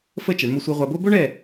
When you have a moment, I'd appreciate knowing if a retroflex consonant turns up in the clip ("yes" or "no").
yes